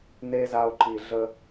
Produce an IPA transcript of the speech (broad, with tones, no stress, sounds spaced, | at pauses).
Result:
n e˦ z a˧ o̯ ǃ i˨ ɮ ə˧